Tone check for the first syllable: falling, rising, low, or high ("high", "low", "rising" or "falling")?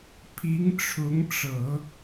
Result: rising